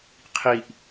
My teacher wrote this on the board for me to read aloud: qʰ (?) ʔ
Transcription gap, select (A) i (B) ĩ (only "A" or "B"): A